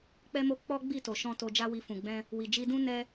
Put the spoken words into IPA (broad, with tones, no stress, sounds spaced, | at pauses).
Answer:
k͡p ɛ˧ m o˧ k͡p ɔ˦ ɡ͡b i˦˨ t o˨ ʃ ɔ̃˧ t o˧ d͡ʒ a˦ w i˧ f ũ˨ ɡ͡b ɛ̃˧ | w i˨ d͡ʒ i˧ d ũ˦ n ɛ˧